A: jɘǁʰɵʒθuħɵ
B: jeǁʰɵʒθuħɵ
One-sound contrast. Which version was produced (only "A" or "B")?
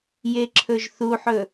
B